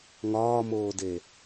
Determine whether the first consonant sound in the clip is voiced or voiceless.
voiced